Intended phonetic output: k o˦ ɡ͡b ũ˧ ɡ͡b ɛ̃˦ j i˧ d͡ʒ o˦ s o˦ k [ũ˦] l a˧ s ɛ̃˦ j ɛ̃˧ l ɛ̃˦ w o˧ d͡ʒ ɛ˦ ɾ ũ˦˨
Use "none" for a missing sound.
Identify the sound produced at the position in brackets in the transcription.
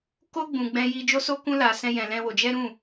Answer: ũ˦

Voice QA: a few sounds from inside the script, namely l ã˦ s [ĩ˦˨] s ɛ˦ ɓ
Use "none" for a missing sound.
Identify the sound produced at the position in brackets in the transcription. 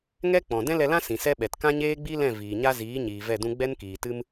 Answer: ĩ˨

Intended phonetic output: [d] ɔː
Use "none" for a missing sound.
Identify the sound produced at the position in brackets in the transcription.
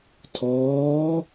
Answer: tʰ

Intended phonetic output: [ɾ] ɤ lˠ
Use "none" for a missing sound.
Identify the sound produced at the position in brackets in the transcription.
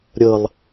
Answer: ɾʲ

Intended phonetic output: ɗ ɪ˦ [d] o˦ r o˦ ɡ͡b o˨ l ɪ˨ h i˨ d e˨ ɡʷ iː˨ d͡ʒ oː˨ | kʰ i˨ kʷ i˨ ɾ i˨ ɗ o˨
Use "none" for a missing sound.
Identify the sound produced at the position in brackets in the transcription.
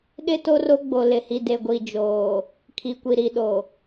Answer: t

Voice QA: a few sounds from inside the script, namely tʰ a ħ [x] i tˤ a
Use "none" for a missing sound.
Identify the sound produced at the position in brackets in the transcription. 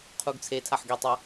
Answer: ɡ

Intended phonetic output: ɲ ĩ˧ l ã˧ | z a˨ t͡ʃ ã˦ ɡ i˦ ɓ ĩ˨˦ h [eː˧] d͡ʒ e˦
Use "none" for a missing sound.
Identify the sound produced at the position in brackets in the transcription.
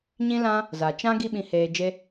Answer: eː˧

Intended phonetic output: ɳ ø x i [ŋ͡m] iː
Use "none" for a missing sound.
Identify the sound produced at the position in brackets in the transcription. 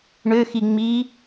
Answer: ŋ͡m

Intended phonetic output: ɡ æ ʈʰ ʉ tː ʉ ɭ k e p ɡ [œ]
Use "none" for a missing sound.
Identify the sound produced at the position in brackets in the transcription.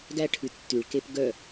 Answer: œ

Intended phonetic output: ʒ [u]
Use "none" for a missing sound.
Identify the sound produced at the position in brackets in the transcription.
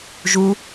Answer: u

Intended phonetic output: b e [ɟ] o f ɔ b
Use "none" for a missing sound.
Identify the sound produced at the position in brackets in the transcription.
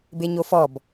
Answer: ɲ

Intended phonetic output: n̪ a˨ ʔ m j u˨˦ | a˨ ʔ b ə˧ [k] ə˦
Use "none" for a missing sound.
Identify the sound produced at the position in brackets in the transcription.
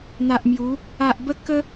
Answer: k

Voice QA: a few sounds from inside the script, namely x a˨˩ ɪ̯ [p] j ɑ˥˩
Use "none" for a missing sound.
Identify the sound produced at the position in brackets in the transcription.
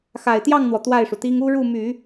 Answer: t̪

